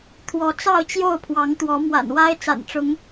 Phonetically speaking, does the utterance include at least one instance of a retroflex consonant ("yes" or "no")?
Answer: yes